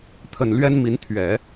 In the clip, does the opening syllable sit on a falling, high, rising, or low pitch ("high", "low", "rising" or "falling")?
low